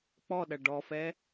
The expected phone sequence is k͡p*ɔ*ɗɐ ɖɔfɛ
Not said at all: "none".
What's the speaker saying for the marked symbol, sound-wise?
ɔ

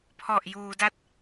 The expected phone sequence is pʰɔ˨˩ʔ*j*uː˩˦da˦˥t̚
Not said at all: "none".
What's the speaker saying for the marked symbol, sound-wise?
j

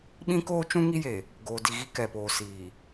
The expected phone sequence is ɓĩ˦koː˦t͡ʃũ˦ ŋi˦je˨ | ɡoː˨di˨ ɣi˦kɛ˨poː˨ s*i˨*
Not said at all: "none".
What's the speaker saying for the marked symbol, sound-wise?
iː˨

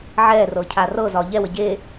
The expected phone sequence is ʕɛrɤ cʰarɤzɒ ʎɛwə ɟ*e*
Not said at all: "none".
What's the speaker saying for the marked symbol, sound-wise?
e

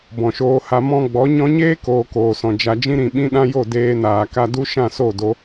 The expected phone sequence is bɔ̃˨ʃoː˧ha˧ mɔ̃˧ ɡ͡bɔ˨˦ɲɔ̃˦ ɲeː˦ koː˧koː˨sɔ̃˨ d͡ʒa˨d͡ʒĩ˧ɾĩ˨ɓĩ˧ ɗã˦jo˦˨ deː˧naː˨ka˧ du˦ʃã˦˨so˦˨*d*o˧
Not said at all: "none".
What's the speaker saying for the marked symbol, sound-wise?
d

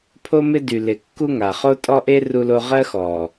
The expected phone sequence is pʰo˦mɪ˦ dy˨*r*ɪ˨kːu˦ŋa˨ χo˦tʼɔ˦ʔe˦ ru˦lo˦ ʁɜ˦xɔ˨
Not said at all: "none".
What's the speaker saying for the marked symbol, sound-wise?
l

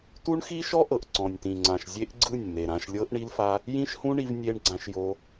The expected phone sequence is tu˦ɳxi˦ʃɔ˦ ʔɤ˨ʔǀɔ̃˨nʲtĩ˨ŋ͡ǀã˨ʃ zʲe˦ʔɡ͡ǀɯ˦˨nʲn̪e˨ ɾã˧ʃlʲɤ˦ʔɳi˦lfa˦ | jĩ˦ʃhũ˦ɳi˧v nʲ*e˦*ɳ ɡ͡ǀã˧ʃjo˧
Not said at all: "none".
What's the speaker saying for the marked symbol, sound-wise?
e˧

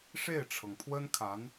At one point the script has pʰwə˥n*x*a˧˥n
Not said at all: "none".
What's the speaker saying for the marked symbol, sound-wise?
kʰ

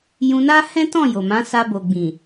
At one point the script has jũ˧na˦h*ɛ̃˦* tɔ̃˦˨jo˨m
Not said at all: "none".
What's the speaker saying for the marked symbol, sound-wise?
ɛ̃˦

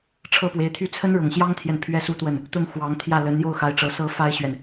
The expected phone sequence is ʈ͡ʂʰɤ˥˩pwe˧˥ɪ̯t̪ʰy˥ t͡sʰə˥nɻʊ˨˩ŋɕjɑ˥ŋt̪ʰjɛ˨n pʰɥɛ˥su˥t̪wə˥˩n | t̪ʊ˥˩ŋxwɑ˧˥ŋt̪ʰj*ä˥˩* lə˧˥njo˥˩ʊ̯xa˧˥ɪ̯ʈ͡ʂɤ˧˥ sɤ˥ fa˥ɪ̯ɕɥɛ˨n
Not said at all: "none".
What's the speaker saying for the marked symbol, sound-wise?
ä˥˩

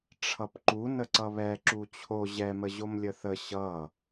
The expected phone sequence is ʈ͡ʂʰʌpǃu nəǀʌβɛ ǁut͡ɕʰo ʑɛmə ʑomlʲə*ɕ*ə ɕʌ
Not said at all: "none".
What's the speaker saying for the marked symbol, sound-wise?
θ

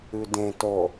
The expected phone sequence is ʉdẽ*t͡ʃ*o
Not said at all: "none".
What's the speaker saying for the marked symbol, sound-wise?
t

